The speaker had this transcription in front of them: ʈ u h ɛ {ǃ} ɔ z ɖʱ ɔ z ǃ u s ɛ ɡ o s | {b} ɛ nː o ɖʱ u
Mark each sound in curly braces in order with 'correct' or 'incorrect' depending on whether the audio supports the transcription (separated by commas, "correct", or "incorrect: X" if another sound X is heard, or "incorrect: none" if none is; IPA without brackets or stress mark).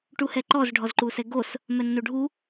correct, incorrect: m